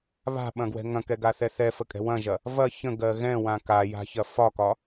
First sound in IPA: β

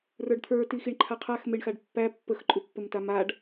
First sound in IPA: r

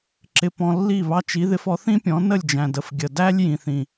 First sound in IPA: ǁ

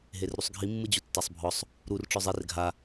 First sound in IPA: ɦ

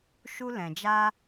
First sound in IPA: ʃ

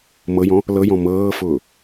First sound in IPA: m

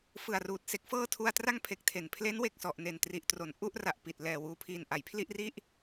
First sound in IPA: f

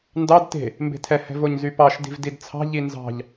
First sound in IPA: n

